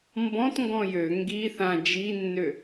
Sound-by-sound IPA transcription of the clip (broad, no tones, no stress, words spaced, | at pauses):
mbɔ̃tŋɡɔ̃ jø ŋɡi θã d͡ʒinːø